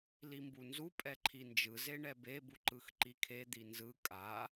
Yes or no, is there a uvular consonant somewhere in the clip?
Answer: no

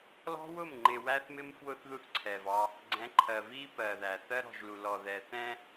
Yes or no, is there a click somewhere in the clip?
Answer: yes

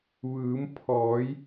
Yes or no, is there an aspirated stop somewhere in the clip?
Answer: yes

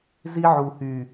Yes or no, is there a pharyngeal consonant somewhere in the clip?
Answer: yes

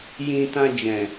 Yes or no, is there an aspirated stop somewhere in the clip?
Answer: no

